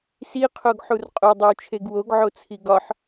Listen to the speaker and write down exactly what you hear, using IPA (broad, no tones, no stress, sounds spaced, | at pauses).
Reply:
s i qʰ o ɡ ħ u r qʼ o dˤ i w t͡ʃʰ e ɡ w o ɡ ʕ o t͡sʰ i ɡ ɒ ħ